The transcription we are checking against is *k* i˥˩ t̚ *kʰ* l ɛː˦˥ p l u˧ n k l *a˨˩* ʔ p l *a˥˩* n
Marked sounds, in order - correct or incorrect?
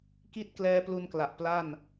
correct, incorrect: k, correct, correct

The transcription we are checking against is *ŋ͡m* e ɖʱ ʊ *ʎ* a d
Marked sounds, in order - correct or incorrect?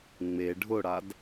correct, incorrect: ɽ

